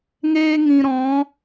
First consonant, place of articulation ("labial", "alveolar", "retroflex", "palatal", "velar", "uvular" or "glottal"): velar